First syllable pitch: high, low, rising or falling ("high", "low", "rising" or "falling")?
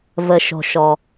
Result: low